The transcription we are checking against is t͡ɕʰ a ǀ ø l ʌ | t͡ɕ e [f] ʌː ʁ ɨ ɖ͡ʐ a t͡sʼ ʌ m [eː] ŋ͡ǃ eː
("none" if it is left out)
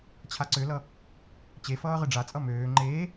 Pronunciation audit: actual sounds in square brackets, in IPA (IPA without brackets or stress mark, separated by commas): f, øː